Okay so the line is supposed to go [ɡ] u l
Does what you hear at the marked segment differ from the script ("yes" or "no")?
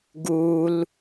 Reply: no